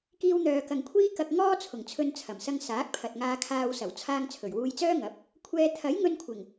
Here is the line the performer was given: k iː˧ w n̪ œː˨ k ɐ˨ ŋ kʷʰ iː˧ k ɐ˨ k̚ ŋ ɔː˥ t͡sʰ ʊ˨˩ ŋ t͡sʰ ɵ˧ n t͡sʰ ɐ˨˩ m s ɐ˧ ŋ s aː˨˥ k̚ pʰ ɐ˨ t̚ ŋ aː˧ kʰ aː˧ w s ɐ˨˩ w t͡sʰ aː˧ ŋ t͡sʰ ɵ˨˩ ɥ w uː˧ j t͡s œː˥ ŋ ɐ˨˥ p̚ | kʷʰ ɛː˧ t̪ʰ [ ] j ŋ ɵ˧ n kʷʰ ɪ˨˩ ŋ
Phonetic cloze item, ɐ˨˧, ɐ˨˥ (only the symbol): ɐ˨˥